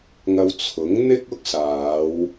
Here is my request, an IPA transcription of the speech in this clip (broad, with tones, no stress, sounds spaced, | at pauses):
ŋ ɐ˧ w t͡sʰ ʊ˨˥ ŋ n̪ ɪ˥ k̚ ʊ˥ k̚ s aː˨˧ w